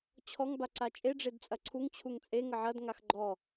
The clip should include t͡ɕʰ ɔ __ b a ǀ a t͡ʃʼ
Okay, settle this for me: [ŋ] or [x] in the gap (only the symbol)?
ŋ